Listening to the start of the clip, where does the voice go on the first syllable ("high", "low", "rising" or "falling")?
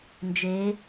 rising